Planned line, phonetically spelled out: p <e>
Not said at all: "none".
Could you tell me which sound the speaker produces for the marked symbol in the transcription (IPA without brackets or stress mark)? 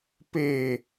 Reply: e